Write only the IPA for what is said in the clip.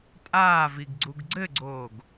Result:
tʼaːviɡɡ͡ǀuɡ ɡ͡ǀɘɡ͡ǀoːɡ

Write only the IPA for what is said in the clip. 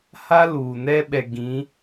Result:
ha˦luː˨nɛ˦ɓɛ˨ ɡĩ˨˦

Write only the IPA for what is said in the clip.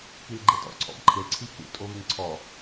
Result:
kilɡ͡ǃetɔ̰ ǀʰɔ̰bǃʰɪl ǀʰikṵtʼo βɪŋǀʰɔ

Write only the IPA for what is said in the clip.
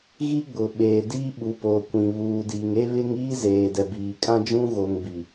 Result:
ɣi˦ ɡ͡bʊ˨ ɓeː˨ diː˦ɓu˨˦ poː˨kʷĩ˨ βuː˨diː˨ŋ e˦βɪ˦ŋiː˦ zeː˨dɛ˨biː˨ kʼã˦d͡ʒũ˦ɣo˨ŋ bi˨

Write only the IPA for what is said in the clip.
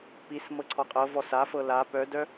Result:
pis mɤǀʰɔqʼɤ vɔsa fɤla pœdœ

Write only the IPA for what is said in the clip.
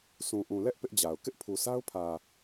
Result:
sʰũ˨ʔũ˨lɛ˦ʔ pɪ˦ʔd͡ʑa˨ʊ̯ kɪ˦ʔpʰu˨sa˦ʊ̯pʰä˨

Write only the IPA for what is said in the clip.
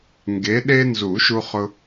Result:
ŋɡe˨˦ɗe˦nzu˨˩˦ ʃu˦χʊ˦

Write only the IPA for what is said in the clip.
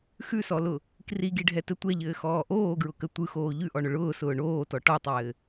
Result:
xʉsɔlʊ | kriɡiɖʱɛtɘ tʷɛʎɘːxɔː ʔoːɡɹʊkə tʷɯxoː ʎʉʔɔɳʊ ɭʊːsʊː ɳoːtɔ ʈɔtˤɘː

